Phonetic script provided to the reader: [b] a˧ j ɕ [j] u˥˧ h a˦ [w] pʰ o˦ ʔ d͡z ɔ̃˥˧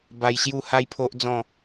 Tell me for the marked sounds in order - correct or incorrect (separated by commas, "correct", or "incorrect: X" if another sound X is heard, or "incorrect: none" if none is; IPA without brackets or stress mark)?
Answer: correct, correct, incorrect: j